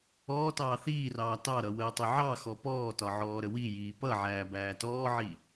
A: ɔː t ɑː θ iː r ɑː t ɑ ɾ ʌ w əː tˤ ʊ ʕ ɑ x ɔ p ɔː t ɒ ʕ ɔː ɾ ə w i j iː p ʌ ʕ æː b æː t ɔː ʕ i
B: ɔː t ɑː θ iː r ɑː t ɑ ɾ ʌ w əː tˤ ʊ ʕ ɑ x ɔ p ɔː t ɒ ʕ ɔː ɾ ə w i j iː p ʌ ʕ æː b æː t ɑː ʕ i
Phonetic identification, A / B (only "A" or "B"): A